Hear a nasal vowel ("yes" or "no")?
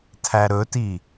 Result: no